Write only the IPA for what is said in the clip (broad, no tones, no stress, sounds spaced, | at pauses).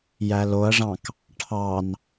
j æ l o ɐ̯ ʐ ɑ̃ k | ʈʰ ɑ n